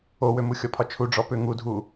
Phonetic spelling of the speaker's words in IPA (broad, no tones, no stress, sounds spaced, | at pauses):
o w ø m u xʲ ɔ pʰ ɒ t͡ʃʰ u ɖ͡ʐ ɔ p ʏ ŋ u dʱ u